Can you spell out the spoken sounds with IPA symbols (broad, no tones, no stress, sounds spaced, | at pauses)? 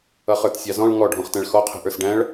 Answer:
ʌ χ ə˞ t sʲ ɑ z ɔ̃ ɭ ŋ ɔ ɖʱ ɔ̃ χ t æ̃ ɭ x ɔ qʰ i̤ ʔ ə˞ s ɖ æ̃ ɭ